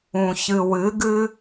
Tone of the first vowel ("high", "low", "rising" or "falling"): low